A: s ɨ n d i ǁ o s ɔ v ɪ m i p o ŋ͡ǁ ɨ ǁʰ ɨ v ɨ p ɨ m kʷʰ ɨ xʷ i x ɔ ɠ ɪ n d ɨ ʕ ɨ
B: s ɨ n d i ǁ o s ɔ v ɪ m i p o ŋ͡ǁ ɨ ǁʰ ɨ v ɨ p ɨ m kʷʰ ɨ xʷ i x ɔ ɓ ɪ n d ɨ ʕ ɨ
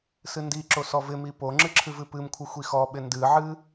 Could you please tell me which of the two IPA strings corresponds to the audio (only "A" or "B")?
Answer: B